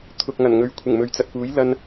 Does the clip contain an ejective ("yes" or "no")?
no